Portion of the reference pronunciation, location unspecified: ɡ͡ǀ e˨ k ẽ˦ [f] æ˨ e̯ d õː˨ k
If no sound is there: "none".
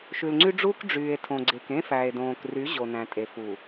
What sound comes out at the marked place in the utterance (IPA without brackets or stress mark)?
f